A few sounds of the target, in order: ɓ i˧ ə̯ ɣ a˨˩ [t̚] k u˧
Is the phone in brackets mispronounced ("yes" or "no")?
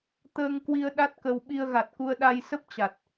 no